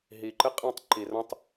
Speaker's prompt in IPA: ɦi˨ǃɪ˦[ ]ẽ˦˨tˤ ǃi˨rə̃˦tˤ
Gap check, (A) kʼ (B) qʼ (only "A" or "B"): B